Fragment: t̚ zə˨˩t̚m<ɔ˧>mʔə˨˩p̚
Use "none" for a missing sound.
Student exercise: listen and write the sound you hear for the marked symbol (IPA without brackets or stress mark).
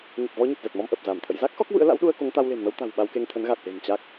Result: ɔ˧